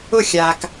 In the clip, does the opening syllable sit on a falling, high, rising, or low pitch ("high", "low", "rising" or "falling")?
falling